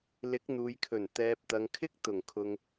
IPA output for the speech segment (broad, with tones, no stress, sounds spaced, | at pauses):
l ɪ˨˥ k̚ n̪ uː˨ j kʰ ɵ˨˩ n t̪ ɛː˨ p̚ t̪ ɐ˨ ŋ kʰ ɪ˥ k̚ t̪ ʊ˨˩ ŋ kʰ ʊ˨ ŋ